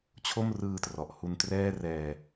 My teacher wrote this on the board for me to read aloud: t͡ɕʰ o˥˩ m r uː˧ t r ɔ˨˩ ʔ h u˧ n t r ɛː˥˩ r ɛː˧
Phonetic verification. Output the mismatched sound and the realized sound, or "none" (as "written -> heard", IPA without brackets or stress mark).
uː˧ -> ɯː˧